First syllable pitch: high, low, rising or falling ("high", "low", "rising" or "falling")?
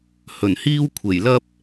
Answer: low